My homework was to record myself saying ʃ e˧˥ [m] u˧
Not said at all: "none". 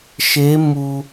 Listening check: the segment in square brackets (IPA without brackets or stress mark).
m